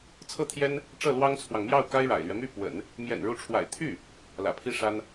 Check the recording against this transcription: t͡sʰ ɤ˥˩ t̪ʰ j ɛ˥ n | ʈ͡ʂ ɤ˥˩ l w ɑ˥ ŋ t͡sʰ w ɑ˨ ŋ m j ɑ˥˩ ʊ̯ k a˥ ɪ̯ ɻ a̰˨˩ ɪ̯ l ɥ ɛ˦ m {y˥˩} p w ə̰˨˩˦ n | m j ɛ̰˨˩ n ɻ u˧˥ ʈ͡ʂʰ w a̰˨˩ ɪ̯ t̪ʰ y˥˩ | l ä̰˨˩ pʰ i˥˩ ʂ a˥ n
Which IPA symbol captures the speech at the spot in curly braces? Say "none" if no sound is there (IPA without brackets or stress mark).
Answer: y˥˩